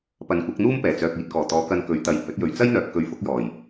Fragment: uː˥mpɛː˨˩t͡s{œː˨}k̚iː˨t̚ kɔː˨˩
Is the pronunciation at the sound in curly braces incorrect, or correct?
correct